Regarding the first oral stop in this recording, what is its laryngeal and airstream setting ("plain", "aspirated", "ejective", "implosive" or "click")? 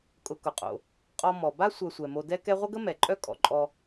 ejective